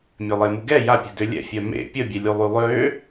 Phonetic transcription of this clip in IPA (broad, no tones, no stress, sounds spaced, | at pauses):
mʲ ø lˠ e m u ɡ ɛ j a pʲ ɛ̤ d ø lʲ ɛ̰ fʲ œ m ḛ pʲ ə bʲ ɛ lʲ u lˠ y lˠ ø